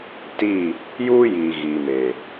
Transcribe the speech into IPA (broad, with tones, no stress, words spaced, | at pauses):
tiː˦˨ | juː˦jiː˨ ɣiː˨meː˨